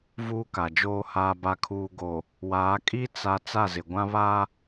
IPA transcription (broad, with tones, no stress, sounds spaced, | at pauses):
v uː˦ k a˨ d͡ʒ oː˦ h aː˨ b a˨ kʰ uː˨ ɡ o˨ | w aː˨˦ kʼ i˦ t͡s a˨ t͡s a˦˨ z ɪ˨ ɡʷ ã˦ β a˦